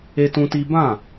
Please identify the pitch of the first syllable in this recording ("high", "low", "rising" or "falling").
high